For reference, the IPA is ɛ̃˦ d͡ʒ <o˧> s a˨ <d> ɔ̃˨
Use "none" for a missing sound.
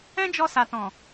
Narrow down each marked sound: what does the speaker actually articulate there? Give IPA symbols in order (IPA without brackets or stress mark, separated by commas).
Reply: ɔ˧, t